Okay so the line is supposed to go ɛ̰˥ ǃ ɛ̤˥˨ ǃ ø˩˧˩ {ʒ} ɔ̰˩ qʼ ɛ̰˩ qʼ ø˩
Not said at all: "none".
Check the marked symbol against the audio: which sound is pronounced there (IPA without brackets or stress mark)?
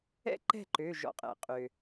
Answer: ʒ